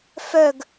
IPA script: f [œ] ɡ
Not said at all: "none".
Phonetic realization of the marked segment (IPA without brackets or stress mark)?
œ